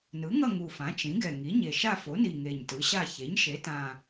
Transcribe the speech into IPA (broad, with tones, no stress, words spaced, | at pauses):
nɯ˩˥ŋʌ˦˨ ŋu˨˩fã˩˥ t͡ʃĩ˩˥ɡɛ˨˩ ŋi˩˥ɲe˨˩ ʃa˦˨fo˩˥ni˨˩ ŋe˨˩ɲtɯ˩˥ɕa˦˨ çe˩˥ɲ ʃe˩˥tã˨˩